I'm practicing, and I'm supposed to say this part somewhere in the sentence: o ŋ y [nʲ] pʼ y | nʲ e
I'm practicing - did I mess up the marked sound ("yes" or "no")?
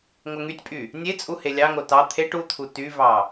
yes